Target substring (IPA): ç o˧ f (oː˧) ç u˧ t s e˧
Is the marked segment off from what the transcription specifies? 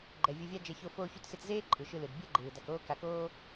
no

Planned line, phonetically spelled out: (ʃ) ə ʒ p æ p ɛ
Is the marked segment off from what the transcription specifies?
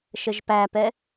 no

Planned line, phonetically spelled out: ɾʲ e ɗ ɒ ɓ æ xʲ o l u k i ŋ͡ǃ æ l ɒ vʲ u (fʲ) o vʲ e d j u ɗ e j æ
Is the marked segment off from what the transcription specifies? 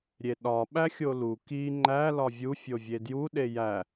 no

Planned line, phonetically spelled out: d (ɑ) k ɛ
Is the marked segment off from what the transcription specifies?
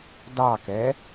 no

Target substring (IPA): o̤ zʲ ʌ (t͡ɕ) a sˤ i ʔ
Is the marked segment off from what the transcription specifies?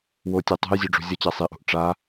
no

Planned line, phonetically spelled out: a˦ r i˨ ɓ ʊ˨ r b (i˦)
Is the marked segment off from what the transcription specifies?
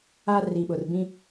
yes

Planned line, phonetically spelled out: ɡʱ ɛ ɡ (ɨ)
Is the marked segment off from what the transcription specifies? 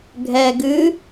no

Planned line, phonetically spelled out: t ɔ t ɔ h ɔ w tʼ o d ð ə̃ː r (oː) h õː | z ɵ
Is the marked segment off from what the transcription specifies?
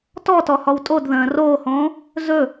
no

